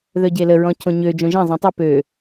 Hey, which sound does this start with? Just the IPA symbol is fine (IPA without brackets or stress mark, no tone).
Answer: ð